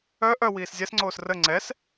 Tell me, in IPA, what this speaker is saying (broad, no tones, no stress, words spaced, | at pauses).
œ ʔœ wiːszʲɛsŋ͡ǀoːs rə ŋ͡ǀɛs